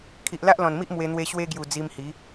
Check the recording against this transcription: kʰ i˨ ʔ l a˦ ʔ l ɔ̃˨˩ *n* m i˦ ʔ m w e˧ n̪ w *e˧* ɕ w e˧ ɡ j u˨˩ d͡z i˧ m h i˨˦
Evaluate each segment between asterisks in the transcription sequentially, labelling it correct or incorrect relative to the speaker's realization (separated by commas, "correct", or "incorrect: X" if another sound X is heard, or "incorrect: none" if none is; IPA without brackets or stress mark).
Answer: correct, correct